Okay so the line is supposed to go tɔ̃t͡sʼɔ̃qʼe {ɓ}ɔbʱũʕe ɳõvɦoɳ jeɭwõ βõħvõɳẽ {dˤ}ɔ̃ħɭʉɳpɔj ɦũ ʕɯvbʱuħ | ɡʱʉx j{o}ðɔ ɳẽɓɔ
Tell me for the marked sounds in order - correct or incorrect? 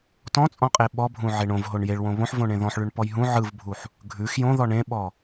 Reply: correct, incorrect, incorrect

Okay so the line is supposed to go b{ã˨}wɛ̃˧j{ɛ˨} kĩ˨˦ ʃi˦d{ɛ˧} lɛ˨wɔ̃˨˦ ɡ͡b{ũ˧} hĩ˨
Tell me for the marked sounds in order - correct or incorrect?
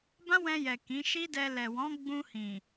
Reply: incorrect, correct, correct, correct

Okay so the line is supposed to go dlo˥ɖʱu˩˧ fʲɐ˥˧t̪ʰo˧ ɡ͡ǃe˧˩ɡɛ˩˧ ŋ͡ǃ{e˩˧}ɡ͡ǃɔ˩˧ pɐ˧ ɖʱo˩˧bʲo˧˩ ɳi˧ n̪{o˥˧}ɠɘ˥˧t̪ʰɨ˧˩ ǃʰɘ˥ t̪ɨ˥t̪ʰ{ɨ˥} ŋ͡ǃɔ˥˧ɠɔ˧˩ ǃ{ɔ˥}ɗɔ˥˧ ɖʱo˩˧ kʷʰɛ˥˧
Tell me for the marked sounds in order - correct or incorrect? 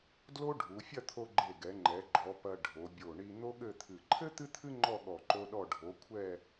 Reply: incorrect, incorrect, correct, incorrect

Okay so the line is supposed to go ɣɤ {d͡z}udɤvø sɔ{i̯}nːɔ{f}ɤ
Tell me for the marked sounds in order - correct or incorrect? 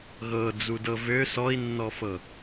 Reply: correct, correct, correct

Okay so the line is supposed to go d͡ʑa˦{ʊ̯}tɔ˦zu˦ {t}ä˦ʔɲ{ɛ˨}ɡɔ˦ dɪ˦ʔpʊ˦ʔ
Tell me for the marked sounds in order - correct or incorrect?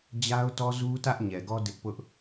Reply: correct, correct, correct

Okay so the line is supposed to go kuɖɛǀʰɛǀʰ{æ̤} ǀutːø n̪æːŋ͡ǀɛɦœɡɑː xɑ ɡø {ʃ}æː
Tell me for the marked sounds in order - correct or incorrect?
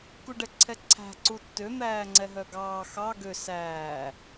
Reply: correct, incorrect

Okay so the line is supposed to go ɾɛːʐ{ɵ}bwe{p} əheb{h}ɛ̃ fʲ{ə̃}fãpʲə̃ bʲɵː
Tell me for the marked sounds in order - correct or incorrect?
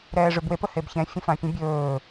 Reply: correct, correct, incorrect, correct

